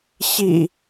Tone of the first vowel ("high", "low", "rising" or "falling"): low